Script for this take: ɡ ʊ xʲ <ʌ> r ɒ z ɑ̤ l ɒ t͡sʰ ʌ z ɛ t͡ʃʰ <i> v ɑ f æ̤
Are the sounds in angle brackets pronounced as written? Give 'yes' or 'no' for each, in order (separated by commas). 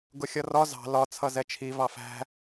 yes, yes